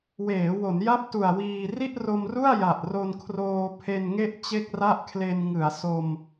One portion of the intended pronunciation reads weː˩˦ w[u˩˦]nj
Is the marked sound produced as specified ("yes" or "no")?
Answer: no